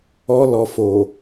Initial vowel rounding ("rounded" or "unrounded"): rounded